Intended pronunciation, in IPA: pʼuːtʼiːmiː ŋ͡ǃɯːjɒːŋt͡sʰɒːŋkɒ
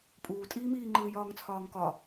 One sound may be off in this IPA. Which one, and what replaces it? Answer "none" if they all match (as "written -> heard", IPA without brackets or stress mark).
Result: none